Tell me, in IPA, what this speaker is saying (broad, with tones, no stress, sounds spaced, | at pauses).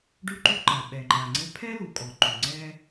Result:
ɖ ʉ˥ ǃ ʉ˥ ǃ a˩ ɓ ɛ˩ ŋ͡ǃ a˩ ŋ͡ǀ ɘ˥ pʰ ɛ˥ l u˩ kʼ ɔ˩ ǃ ʉ˩ ŋ͡ǀ ɛ˥